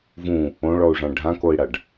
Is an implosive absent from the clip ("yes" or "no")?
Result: yes